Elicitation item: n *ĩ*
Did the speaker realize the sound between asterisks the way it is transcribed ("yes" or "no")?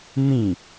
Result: yes